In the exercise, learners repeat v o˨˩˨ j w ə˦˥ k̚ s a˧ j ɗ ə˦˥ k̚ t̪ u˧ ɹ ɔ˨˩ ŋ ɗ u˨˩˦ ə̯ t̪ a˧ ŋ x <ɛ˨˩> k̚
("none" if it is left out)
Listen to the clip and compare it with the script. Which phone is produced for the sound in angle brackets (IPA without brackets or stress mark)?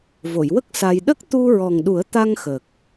ə˨˩